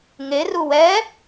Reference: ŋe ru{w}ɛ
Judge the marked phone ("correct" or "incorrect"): correct